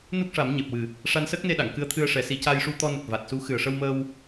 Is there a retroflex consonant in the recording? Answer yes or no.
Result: yes